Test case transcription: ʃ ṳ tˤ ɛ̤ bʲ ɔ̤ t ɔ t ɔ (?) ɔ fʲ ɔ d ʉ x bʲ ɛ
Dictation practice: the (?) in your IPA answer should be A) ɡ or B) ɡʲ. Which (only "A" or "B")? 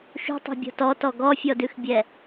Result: A